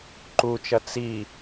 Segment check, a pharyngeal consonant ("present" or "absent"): absent